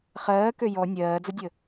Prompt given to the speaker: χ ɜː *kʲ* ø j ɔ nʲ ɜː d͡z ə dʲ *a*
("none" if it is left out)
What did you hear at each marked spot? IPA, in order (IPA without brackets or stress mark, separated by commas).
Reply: k, ə